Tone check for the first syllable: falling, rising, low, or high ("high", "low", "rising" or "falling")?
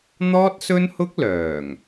high